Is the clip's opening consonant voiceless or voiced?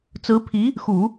voiceless